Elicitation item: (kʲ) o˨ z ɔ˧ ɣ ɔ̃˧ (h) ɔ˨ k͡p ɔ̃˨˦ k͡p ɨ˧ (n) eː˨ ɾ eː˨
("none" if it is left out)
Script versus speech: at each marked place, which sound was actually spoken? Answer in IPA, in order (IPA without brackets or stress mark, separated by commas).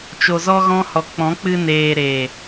t͡ʃ, h, n